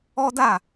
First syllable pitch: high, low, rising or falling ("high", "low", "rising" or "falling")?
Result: high